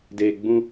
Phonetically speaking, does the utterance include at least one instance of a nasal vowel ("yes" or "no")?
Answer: yes